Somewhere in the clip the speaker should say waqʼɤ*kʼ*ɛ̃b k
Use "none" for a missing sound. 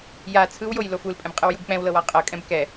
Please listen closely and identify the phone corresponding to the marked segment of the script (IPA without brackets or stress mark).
kʼ